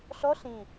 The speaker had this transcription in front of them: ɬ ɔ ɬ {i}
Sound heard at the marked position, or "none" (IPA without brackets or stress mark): ĩ